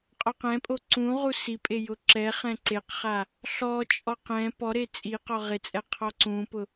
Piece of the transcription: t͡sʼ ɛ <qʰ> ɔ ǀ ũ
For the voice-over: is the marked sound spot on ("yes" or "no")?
yes